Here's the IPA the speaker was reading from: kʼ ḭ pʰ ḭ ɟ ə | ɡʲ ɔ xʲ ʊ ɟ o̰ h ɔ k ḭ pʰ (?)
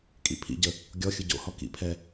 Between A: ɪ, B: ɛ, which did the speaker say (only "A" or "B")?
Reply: B